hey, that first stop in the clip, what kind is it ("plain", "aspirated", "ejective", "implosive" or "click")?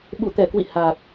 implosive